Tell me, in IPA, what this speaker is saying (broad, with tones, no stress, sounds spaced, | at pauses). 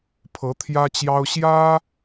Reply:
pʰ ɤ˧˥ t̪ʰ j ä˥ t͡ɕ j ɑ˥ ʊ̯ ɕ j ä˥